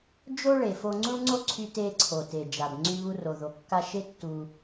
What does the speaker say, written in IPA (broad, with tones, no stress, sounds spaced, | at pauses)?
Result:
d͡ʒ o˥ ɭ e˩ f o˧ ŋ͡ǀ u˥ ɭ ŋ͡ǀ o˥ ǀʰ y˧ t e˧ ǀʰ o˩ t e˩ d͡ʒ a˩ b ŋ͡ǀ y˧ β u˧ r o˩ ð o˩ kː a˧ ʃ e˥ tː u˧